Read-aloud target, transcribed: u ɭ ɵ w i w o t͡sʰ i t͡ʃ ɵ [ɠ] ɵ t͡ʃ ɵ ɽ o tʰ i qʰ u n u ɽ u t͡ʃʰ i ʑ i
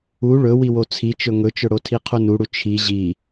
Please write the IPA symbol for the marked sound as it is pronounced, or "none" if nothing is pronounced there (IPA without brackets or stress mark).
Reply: ŋ